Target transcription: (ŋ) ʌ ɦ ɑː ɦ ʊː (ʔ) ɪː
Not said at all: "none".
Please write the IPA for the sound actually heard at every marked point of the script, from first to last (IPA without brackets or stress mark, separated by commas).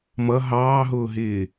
m, ɦ